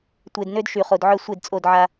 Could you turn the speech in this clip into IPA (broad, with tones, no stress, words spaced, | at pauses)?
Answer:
tʷe˨dnø˦d ʃy˨χo˨dʕœ˦ sʷe˦˨dt͡sʼo˦˨dʕa˦